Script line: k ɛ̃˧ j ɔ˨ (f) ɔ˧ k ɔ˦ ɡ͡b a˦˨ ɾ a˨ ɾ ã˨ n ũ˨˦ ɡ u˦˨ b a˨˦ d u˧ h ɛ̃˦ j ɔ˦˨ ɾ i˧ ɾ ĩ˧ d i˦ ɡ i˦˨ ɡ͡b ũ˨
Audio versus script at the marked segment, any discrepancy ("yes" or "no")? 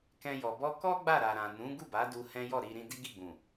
yes